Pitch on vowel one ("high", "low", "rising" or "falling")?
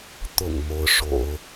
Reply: low